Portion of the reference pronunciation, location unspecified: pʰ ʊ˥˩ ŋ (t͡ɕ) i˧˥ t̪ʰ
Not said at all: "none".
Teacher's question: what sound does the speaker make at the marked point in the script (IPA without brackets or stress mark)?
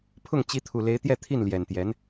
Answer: t͡ɕ